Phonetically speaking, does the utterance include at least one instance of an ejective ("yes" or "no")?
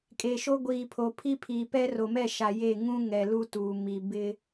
yes